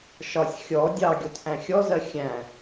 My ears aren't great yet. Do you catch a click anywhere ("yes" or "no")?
no